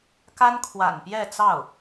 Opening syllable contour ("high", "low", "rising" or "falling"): high